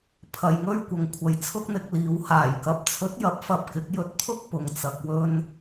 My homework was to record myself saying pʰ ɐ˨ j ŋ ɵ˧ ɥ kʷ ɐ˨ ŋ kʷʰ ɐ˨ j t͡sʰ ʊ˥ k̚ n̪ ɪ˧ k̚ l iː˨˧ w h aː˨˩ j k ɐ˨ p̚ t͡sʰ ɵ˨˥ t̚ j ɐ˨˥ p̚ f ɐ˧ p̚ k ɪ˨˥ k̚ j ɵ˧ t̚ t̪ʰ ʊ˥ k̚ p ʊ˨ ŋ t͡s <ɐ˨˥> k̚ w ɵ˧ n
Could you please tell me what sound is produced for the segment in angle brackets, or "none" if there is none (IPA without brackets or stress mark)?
ɐ˨